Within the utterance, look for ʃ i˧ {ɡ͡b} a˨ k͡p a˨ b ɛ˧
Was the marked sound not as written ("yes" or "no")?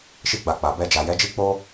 no